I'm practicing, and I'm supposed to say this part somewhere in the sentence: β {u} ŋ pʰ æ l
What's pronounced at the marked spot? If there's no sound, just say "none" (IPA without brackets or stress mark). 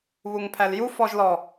u